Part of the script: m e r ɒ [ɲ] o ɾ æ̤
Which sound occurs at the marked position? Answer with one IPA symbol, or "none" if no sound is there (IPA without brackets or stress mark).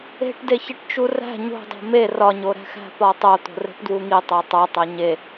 ɲ